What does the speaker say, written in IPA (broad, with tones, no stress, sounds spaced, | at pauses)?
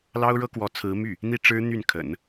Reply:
l ɑ˥ ʊ̯ ɻ ɤ˥ k w ɔ˧˥ t͡sʰ ɹ̩˧˥ m y˥˩ | n̪ i˥˩ ʈ͡ʂ ɻ̩˥ n̪ y˥˩ n kʰ ə̰˨˩˦ n